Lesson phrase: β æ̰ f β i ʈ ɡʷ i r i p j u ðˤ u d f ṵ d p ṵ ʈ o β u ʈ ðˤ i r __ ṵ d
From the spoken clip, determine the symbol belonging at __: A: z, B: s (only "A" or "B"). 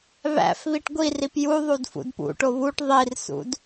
B